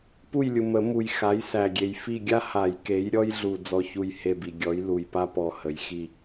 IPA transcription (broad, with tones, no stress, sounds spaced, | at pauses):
p u˦˨ j lʲ u˨ m ə˨˩˦ m u˨ j x a˨˥ j s æ˨ ɡʲ e˨ j f i˦˨ ɡʲ a˥ h a˨˩˦ j k e˨˥ j ɾʲ ɔ˥ j ɮ u˦˨ d͡z ɔ˦˨ ç u˦˨ j h e˦˨ b i˨ ɡʲ ɔ˨˥ j l u˨ j p a˥ p ɔ˦˨ h ə˨˥ j x i˦˨